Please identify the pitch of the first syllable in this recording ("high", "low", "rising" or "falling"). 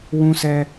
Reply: high